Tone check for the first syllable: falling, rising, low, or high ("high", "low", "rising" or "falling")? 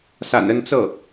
low